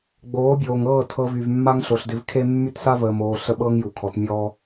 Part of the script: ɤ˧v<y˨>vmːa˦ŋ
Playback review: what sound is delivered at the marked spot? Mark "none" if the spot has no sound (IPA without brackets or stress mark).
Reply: y˨